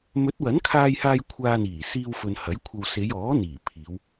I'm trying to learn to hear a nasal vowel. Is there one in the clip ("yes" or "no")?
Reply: no